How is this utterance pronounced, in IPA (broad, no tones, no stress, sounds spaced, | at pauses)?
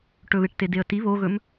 ʈ ɵ β e ʈ t e d e ə̯ t i β o ɣ ɵ m